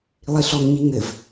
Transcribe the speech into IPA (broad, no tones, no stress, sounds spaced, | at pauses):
lˠ i ɬ ɔ ŋ ɲ i ŋ ɘ v